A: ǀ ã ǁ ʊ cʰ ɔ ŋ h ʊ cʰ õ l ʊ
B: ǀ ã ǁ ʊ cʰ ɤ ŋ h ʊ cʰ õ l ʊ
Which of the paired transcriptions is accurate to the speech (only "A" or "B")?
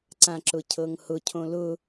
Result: B